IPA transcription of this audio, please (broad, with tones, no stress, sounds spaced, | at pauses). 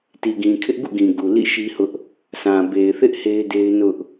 t i˨ ɡ ĩ˨ kʰ ɪ˦ ʔ ɡ ṵ˦˨ ɡ ĩ˨ ɡ u˨ l ḭ˦˨ ʃ i˦ h ʊ˦ ʔ | s ã˨ b e˨ ɪ̯ θ ɪ˦ ʔ h e˦ ɪ̯ d e˦ ɪ̯ n ʊ˦ ʔ